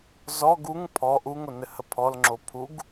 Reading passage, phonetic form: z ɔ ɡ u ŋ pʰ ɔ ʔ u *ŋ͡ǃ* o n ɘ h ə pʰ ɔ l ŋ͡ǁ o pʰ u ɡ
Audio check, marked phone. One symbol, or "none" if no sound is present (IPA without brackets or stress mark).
ŋ